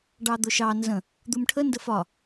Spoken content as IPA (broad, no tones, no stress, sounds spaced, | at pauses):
ɖ ɑ d̪ ʊ ʃ ɑ n z ə̃ | d̪ u m ʈʰ ə n d ə f ɒ